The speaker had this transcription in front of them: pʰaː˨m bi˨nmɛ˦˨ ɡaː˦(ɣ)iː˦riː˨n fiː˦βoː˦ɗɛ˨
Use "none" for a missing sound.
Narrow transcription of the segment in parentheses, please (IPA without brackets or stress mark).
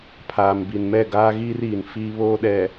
ɣ